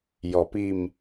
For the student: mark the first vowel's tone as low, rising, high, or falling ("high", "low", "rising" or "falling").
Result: low